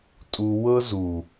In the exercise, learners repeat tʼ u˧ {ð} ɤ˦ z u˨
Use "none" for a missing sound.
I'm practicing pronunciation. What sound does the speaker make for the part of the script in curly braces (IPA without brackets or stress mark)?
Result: w